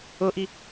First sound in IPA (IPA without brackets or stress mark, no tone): ɤ